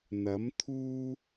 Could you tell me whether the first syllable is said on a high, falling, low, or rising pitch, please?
rising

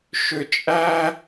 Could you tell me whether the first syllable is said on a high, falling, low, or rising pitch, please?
low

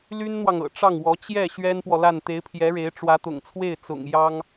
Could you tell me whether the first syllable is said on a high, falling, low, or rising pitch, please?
high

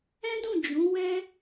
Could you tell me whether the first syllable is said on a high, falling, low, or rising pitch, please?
high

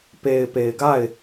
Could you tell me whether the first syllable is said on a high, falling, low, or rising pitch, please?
low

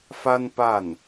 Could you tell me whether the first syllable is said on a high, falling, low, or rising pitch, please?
high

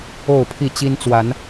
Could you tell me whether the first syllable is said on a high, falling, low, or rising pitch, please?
falling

